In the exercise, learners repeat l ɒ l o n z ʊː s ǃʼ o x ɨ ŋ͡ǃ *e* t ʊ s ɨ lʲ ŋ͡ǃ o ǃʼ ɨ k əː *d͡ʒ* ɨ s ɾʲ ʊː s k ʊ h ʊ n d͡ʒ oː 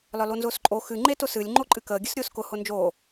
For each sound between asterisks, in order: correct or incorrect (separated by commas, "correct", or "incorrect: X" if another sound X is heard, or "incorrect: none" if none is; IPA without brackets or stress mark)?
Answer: correct, incorrect: ɡʲ